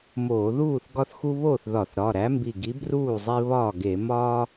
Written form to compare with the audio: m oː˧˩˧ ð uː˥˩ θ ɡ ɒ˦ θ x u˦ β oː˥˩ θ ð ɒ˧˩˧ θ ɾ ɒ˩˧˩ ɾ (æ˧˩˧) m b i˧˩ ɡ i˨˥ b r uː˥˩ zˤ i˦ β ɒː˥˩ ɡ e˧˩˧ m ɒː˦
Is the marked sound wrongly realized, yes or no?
yes